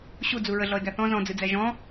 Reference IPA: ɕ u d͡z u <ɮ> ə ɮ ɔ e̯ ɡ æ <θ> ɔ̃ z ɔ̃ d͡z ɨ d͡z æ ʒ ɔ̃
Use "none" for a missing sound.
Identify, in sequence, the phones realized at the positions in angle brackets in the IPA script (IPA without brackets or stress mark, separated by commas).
ɹ, θ